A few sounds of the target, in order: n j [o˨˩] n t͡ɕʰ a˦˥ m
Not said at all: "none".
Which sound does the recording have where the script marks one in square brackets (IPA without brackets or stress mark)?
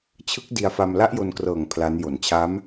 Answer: o˨˩